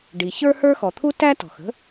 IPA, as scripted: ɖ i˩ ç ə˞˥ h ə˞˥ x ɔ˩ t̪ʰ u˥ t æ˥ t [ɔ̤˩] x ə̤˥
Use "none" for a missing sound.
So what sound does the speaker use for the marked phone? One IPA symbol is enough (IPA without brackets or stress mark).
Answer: ɔ̤˩